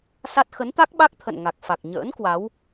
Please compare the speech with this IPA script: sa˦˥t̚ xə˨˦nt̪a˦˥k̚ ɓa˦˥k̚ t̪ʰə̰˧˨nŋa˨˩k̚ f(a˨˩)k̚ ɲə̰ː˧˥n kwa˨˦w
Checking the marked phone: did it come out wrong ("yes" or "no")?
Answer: no